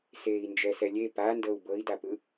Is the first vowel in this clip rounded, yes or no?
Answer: no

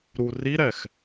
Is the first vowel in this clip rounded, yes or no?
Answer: yes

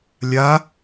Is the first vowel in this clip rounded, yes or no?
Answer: no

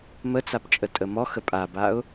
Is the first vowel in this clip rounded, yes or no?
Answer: no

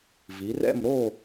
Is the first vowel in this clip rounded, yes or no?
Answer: no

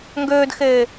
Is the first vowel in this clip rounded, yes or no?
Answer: yes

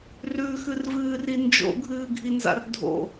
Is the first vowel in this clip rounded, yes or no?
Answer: yes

